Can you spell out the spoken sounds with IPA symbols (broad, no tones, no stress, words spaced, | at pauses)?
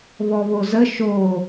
βɔβozə ʃo